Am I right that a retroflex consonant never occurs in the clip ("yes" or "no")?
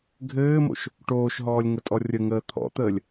no